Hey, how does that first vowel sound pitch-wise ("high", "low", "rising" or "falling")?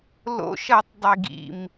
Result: high